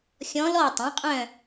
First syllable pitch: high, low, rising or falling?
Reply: rising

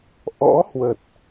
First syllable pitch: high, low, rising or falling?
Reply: rising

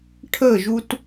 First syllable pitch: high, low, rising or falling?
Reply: falling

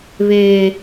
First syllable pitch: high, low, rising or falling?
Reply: high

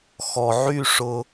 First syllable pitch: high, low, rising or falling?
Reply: low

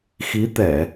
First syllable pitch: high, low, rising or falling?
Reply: rising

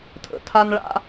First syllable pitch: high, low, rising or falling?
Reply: low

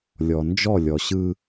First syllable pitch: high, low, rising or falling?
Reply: low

